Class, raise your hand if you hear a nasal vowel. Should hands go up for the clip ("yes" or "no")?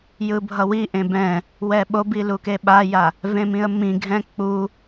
yes